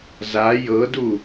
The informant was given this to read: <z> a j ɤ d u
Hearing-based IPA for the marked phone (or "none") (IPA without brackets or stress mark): z